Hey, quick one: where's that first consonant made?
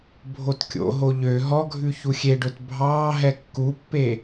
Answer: lips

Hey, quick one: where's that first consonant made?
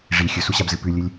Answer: retroflex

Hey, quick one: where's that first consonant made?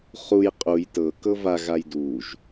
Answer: uvula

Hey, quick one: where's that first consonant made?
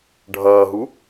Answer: retroflex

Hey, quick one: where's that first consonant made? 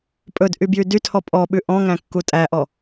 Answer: lips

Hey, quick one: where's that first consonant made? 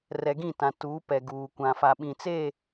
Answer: tongue tip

